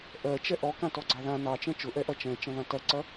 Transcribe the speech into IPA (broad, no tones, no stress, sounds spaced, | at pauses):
ʔ ɜ t͡ʃ ɛ ʔ ɔ k ã t ɔ ɡ͡ǀ ɑ ð ã n ɑ t͡ʃ ɛ̃ t͡ʃ ʊ ʔ ɛ ʔ ɐ t͡ʃ ɛ̃ t͡ʃ ɐ̃ ð ã t ɐ ǀ ɐ